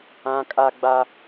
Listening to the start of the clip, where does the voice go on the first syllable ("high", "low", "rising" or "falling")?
high